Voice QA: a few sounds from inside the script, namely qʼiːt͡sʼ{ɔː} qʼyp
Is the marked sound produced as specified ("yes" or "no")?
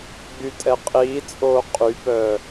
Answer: no